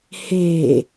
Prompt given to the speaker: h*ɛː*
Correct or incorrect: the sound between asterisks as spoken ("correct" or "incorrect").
incorrect